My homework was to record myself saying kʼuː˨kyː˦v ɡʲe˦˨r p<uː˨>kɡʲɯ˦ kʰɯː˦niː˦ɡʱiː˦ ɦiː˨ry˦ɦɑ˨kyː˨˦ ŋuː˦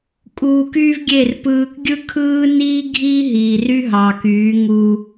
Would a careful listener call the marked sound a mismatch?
yes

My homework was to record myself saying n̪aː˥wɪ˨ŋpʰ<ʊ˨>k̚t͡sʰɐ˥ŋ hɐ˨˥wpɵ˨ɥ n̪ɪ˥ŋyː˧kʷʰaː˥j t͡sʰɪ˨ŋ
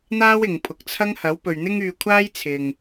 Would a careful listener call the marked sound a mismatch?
no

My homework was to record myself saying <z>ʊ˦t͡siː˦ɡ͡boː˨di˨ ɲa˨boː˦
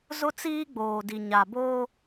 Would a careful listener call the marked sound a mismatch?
no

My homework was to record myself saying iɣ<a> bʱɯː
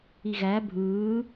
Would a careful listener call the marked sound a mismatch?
yes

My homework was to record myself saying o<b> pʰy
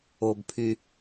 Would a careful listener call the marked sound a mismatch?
no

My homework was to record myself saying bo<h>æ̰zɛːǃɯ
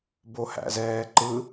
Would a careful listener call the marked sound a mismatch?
no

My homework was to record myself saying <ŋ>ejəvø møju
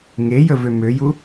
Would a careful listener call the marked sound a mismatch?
no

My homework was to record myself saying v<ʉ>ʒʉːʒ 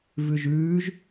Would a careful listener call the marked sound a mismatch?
no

